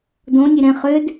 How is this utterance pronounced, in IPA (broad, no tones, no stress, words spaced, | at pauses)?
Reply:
dõ nʲeɾɛ̃ χød